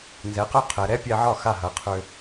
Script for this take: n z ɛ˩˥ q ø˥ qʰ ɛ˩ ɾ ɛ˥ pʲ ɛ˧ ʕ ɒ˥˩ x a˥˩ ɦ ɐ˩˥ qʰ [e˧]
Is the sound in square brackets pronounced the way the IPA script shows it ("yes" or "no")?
no